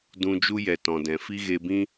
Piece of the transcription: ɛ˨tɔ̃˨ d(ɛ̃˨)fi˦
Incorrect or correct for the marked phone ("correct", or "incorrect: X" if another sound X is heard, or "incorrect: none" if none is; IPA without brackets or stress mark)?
correct